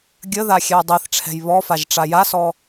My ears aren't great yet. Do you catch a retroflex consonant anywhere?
yes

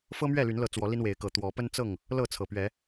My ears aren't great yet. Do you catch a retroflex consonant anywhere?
no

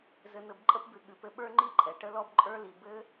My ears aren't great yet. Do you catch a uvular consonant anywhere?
no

